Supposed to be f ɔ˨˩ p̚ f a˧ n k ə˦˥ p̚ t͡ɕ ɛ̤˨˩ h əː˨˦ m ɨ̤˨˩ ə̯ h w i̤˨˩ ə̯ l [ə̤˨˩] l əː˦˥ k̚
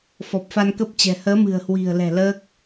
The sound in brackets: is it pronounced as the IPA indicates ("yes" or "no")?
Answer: no